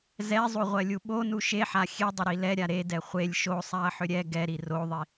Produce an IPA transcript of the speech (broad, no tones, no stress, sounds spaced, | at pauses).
z ɛ zˤ u ʁʷ ɜ lʲ u ɓ o n u ʃ e ħ a xʲ e dˤ ʏ ɾ i l ɛ ɾʲ a ɾ e d ɛ χʷ e lʲ ʃ o sˤ a ɐ̯ ħ ʏ ɾʲ ɛ ɡ ɛ ɾ i r o ðˤ i